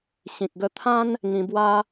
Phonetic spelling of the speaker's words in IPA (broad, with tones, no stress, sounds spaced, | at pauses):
ɕ ĩ˨ k̚ ɡ ə˧ t̪ʰ ã˦ n | ŋ ĩ˧ b w a˦